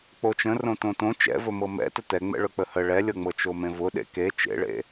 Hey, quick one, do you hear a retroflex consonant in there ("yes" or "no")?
yes